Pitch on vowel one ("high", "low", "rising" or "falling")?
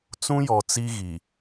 high